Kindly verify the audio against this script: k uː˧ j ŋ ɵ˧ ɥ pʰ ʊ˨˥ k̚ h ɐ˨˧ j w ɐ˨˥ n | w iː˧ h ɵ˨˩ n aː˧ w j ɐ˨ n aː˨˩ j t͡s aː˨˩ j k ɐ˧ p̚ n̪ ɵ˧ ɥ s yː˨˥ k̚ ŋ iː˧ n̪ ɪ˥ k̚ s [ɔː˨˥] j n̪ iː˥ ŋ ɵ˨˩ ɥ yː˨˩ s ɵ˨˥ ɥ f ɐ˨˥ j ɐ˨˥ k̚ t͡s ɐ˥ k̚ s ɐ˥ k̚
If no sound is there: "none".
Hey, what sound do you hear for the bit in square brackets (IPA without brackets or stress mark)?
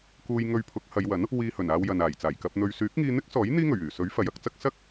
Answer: ɔː˨˥